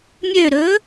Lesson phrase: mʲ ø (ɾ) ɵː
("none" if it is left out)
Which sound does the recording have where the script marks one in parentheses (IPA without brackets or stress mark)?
ɾ